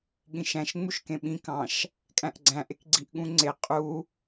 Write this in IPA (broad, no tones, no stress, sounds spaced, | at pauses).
ɠ ĩ ʃ æ̃ ʃ ŋ͡m u ʃ k ẽ ɓ ĩ k ɑ̃ ʃ | kʼ æ̃ ʔ ɡ͡ǀ æ̃ ʔ e k ɡ͡ǀ i ʔ ɠ ũ ŋ͡ǀ e qʼ u